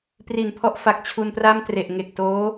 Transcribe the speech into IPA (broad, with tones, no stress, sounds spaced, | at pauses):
p r i˨˩ n pʰ ɔ˦˥ ʔ f a˨˩ k̚ t͡ɕʰ u˧ n p r a˥˩ m t r e˨˩ ʔ ŋ e˨˩ k̚ t oː˦˥